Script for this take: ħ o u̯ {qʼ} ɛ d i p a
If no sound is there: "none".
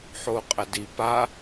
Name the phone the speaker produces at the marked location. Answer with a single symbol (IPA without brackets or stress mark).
qʼ